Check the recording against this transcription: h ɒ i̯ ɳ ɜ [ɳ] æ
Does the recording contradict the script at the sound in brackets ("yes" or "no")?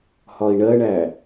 no